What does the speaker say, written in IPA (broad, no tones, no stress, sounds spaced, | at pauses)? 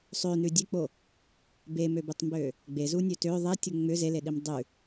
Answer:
sˤ ø n ʉ dʲ e k͡p o | b e m ø b ʉ tˤ m b ø | ɡ͡b e z u nʲ ø t ø ðˤ i tʲ u ŋ͡m ʏ z e l e ɗ i m dˤ ʉ